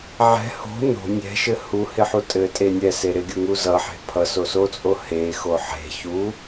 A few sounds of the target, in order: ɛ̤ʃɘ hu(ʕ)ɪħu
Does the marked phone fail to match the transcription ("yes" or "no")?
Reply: yes